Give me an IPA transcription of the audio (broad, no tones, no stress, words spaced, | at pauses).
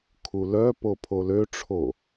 kʰulœpo pʰoløʈ͡ʂʰo